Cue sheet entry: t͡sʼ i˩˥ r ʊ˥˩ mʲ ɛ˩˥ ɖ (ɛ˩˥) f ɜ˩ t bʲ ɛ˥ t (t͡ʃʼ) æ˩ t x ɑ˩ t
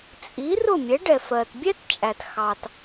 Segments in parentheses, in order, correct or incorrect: incorrect: ɛ˩, correct

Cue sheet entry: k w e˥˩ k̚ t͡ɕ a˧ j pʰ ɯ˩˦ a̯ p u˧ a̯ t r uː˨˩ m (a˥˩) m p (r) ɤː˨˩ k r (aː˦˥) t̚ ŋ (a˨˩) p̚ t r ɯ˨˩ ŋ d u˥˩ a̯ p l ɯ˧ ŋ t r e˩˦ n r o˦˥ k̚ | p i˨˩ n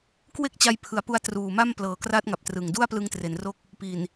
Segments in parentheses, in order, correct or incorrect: correct, incorrect: l, correct, correct

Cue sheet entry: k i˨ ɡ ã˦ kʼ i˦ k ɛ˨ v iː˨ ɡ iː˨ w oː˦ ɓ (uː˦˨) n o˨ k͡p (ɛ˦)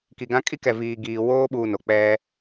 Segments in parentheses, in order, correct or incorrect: incorrect: uː˦, correct

